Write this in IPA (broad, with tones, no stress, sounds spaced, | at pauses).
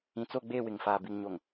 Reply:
ĩ˨ t͡s o˦˨ ɡ͡b eː˦˨ w ɪ˨ ŋ f aː˨ b i˨ ŋ ɲ o˨ ŋ